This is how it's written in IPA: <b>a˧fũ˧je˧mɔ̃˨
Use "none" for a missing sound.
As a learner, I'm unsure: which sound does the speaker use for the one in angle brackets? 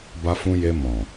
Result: b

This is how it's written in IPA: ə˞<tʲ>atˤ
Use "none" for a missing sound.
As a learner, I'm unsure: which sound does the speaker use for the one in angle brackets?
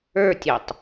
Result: tʲ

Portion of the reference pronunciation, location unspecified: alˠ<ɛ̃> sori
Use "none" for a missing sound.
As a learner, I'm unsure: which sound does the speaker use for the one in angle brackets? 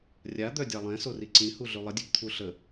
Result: ɛ̃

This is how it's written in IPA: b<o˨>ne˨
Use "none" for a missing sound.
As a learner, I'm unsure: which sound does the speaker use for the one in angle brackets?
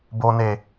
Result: o˨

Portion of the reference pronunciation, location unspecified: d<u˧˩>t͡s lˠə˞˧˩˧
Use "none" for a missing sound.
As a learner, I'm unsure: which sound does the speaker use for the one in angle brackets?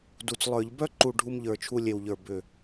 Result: u˧˩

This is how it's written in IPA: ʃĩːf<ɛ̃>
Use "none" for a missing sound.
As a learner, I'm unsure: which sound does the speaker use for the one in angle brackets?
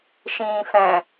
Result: ɛ̃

